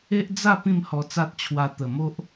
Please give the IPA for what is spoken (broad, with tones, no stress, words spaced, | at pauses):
e˦ʔ d͡za˥˧ pĩ˥˧mhɔ˧t͡sa˦t̚t͡ɕʰwa˧ t̪ə˨˩mo˦ʔ